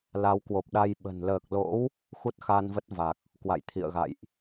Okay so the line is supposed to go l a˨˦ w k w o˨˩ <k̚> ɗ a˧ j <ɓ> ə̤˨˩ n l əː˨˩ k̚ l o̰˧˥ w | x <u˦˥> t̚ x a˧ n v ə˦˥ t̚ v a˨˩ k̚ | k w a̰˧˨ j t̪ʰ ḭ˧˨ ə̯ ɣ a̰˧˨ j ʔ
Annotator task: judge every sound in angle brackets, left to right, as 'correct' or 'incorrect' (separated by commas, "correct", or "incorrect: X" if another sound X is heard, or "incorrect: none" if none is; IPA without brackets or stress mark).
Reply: incorrect: p̚, correct, correct